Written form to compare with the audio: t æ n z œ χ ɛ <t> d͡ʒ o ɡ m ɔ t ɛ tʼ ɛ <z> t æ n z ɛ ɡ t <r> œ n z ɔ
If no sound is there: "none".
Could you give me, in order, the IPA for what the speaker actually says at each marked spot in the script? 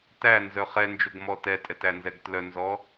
n, none, l

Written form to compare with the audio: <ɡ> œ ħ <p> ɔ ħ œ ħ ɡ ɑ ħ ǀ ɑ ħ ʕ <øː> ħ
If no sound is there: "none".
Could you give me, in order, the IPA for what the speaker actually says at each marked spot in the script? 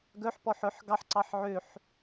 ɡ, p, ø

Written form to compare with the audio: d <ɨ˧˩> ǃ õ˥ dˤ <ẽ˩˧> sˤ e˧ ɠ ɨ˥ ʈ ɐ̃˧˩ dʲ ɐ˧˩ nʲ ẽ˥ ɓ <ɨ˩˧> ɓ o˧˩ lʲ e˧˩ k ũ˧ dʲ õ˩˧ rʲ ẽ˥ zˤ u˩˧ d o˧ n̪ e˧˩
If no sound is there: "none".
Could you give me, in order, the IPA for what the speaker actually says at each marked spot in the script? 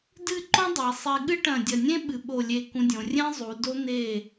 ɨ˥˧, e˩˧, ɨ˩˧

